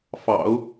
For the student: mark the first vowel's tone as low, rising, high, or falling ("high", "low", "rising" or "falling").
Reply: low